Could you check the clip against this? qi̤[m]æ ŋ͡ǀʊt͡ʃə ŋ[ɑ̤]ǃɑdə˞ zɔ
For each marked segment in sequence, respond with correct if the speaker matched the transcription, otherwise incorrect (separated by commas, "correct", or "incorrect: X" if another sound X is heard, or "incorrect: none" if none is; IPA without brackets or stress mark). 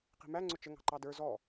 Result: correct, correct